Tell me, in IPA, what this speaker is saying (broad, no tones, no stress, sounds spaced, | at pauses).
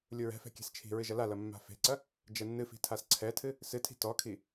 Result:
lʲ u ɹ ɛ̤ f ɛ̤ kʲ ɛ̤ s t͡ʃʰ i̤ ɹ ɨ ʒ ɐ l a l ɐ mː a̤ f e̤ ǀ ɐ | d͡ʒ ɛ nː ɨ f i̤ tʰ a s ǀʰ ɛ tʰ ɨ | s ɨ tʰ i̤ t ɔ kʰ i